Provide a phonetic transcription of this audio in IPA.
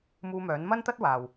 m uː˧ m œː˨˥ n m ɐ˥ n t̪ ɐ˥ t̚ w aː˨ w

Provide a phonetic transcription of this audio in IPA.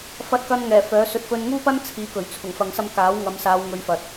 f ɐ˧ t̚ k ɐ˧ n ŋ ɛː˨˩ f œː˨˥ s ɵ˧ t̚ f ɵ˧ n ŋ uː˥ p ɐ˥ n t͡sʰ iː˨˥ k ɵ˨˩ ɥ t͡sʰ ʊ˨˩ ŋ f ɐ˨ ŋ s ɐ˧ m k aː˨˥ w ŋ ɐ˨˧ m s aː˨˧ w ŋ ɵ˨˧ ɥ f ɐ˨ t̚

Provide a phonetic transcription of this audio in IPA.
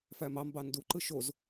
f æ m ɑ m b ɑ n d u ǃ ɯ ʃ o z

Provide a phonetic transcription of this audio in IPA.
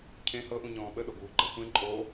cʰ ẽ h ɤ ʔ ũ ɲ ɔ̃ː ɓ ə ɗ o ɡ uː ɡ͡ǃ ə xʷ ẽ ǃʼ o

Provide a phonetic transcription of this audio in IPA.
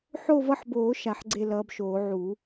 ħ o˦˨ v ʌ˦˨ ħ b oː˨˩˦ ʃ a˨˩˦ ħ ɡ͡ǀ e˦˨ l ʌː˨˦ b ʃ oː˨˩˦ ʕ u˨˩˦

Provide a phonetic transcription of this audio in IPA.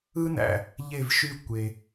ɯ˥ n æ̰˩ | ʎ e˥˩ v ʃ y˥˩ kʷ e˩

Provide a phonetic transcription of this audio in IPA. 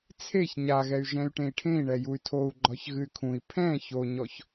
t͡sʰ e ç ɲ a ɣ ɛ y̯ ʒ ɛ̃ y̯ ʈ ẽ i̯ ʈʰ ẽ i̯ ɳ ɛ j u y̯ tʰ o u̯ ɡ͡ǃ ɒ ç ɣ ɨ y̯ kʰ ũ i̯ pʰ ɛ̃ ç o ɲ ɔ ç

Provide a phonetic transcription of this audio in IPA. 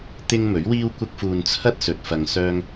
t̪ ɪ˥ ŋ m ɵ˨˥ ɥ w iː˥ w kʷ ɐ˥ k̚ f uː˧ n t͡sʰ ɐ˥ t̚ s ɵ˨ t̚ f ɐ˧ ŋ s œː˥ ŋ

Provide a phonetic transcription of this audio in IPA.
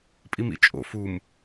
pʼ i m ḭ t͡ʃʼ o̰ f u m

